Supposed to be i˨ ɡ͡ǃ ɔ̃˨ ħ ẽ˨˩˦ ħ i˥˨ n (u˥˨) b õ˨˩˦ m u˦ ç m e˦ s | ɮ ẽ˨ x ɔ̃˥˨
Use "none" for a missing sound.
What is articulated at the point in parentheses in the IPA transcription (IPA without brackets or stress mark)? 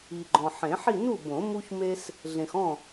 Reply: u˥˨